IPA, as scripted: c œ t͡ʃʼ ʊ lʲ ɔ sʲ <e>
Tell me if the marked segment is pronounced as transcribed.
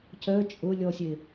yes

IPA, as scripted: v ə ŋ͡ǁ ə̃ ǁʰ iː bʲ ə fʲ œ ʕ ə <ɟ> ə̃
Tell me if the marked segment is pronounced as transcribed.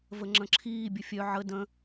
no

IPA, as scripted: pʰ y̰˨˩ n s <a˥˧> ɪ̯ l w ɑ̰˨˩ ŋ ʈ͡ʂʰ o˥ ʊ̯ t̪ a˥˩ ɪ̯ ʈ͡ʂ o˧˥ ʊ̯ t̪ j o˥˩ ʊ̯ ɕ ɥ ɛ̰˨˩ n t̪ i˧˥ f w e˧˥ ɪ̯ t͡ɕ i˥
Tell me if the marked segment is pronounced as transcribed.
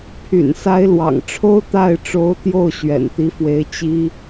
no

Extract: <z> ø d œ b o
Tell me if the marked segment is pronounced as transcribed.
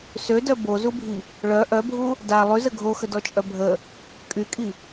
no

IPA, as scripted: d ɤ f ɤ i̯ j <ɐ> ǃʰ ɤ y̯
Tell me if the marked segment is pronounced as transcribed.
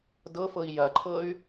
yes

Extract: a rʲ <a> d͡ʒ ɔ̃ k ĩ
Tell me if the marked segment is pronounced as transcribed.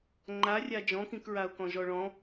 yes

